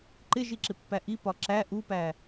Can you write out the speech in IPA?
ǃ ɪ ʒ i ǁ ɪ pː æ ʔ i p ɒ ǁ æ ʔ u p æ

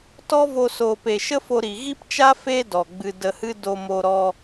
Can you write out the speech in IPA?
t ɔ˦ v o˧ s o˨ p e˨ ʃ ə˦ f o˧ ɾ i˨ ɣ i˦ p t͡ʃ a˦ f e˦ d ɔ˨ ɡ͡b ɨ˧ d ə˧ h ɨ˦ d o˧ m o˧ ɾ ɔ˧

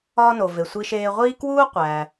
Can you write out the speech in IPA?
ɒː˥ n o˩ v e˩ sʷ i˧ ʃ eː˧ ʁʷ iː˥ k w uː˥ qʷ æː˩

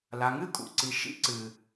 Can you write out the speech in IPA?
l a˨ ŋ ɨ˦ kʼ ṵ˨ ǀ i˨ ʃ ḭ˦ ǀ ɨ˨

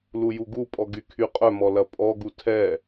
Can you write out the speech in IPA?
l u j u ɡ u pʼ ɔ ɡ y kʰ y qʼ œ m ɔ l ɐ pʼ ɔ ɡ u tʰ ɛ

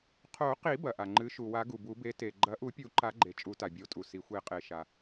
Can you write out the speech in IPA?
qʰ o˨˩˦ q i˨˩˦ b ɐ˩ ʔ a˩ ŋ͡ǃ ɨ˨˥ ʃ u˩ w a˨˩˦ ɡ u˩ b u˨˩˦ b e˨˥ t e˩ ɡ͡ǃ ɐ˨˥ ʔ u˨˩˦ pʲ u˨˩˦ ǃ a˨˩˦ ɡ͡ǃ e˩ t͡ʃʼ u˨˩˦ t a˩ bʲ o˨˩˦ tʼ u˩ s i˩ xʷ e˨˩˦ qʼ e˩ ʃ a˩

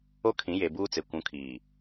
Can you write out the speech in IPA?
o˦ kʰ ĩ˨˦ j e˨ b uː˦ t͡s e˨ kʷ ũ˨˦ kʰ iː˨

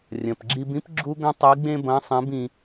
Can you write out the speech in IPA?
rʲ ɐ̃˩ p ɡ͡ǁ i˧ b ĩ˥ p ɡ͡ǁ u˥ ɡ ɐ̃˥ tˤ i˧˥ ɡ͡b ẽ˥ b ɐ̃˧˥ sˤ ẽ˧˥ b ĩ˧

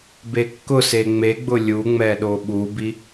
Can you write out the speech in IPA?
b e kː ʊ s e ŋ͡m e ɡ͡b ʊ lʲ u ŋ͡m ɛ ɗ o ɓ u b i

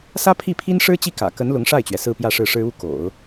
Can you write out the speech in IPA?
s ä˥ pʰ i˥˩ pʰ i˥ n ʂ ɻ̩˥ t͡ɕ i˥˩ k ä̰˨˩ k ə˧˥ n l ʊ˧˥ ŋ ʂ a˥˩ ɪ̯ t͡ɕ ɥ ɛ˩ s ɹ̩˥˧ p j ä˥˧ ʂ ɻ̩˥˩ ʂ ɻ̩˥ u˥ k o̰˨˩˦ ʊ̯

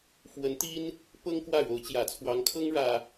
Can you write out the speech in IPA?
f w ə˧˥ n t̪ i˥ n | p ɤ˥ ŋ k w ä˥˩ ɻ o˧˥ ʊ̯ t͡ɕ j ä˨˩ t͡sʰ w ɑ˧˥ ŋ kʰ ɤ˥ ŋ ɻ ä˥

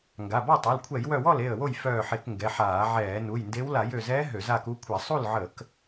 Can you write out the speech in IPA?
ŋ ɡ a˩˧˩ b ɔ˥˩ tˤ u˩˧˩ l kʷʰ ɛ˧˩˧ j w œ˧˩ w ɔ˥˩ l e˥˩ ə̯ w o˥˩ j f œː˧˩ ħ e˧˩˧ k ŋ ɡ ɛ˩˧˩ ħ aː˧˩˧ ʕ ɛː˧˩˧ n u˩˧˩ j n d e˧˥ w l a˧˩˧ j ø˧˩ z ɛː˧˥ ɦ ø˧˩˧ z a˥˩ k u˧˥ kʷʰ ɛ˧˩˧ sˤ u˥˩ l ʕ ə˧˩˧ k

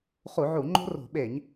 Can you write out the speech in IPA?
χ u˧˩˧ ʕ u˧˩˧ ŋ͡ǃ o̤˦ r o̤˧˩˧ ɓ e˧˩˧ ɲ

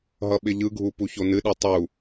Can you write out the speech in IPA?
ɦ ʌ ɓ ɪ ʎ ɯ ɡʱ u p u ç o n ɨ ɗ i tˤ u

